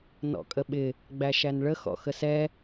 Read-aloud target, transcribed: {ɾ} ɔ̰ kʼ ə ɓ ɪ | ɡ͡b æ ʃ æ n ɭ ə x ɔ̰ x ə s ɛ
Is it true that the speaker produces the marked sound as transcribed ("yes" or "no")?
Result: no